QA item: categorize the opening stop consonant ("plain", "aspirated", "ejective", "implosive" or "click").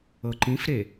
click